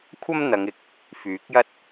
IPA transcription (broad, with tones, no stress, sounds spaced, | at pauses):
kʷʰ ɐ˥ m n̪ ɐ˨˧ ŋ ɪ˨ k̚ | f yː˨˥ k̚ j ɐ˥ t̚